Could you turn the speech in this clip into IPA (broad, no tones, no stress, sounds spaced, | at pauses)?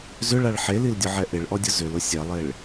z ʏ ɭ a ɭ ħ e l i l dʲ ʊ ʕ ɛ ʔ ɪ ɭ ʔ ɔ dʲ ʊ z ʏ l ʊ sʲ ɛ lˠ e ɭ